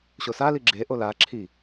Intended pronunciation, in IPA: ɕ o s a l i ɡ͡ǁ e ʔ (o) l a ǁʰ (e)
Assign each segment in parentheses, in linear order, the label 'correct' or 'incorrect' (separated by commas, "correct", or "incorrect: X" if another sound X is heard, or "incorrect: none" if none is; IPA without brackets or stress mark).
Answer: correct, incorrect: i